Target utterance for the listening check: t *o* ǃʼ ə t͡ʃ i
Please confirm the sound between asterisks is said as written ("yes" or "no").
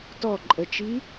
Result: no